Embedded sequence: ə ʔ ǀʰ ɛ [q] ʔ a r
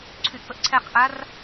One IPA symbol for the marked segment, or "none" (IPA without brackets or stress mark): q